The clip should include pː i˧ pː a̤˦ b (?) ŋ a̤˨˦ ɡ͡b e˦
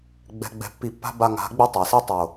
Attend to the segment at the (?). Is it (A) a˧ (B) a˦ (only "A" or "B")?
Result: A